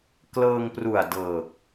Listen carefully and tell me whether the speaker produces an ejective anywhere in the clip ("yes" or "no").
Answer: no